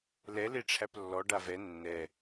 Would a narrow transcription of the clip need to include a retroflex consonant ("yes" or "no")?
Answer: yes